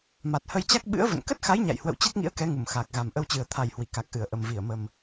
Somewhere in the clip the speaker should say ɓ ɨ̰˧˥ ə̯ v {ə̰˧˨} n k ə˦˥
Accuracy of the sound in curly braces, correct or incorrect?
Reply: correct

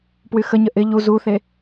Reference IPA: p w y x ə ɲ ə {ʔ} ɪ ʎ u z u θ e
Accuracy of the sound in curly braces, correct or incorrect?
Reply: correct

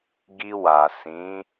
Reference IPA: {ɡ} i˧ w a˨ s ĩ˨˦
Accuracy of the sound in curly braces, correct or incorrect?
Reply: correct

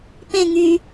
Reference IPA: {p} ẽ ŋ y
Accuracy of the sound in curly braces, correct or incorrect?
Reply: correct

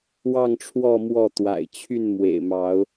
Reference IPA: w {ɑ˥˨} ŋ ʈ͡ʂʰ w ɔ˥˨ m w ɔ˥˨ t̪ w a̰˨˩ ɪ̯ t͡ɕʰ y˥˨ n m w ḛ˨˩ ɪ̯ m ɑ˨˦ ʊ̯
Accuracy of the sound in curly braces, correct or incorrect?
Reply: correct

